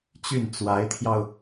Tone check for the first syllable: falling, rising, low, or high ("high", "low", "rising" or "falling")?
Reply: falling